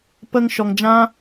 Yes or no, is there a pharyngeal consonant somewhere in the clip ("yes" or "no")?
no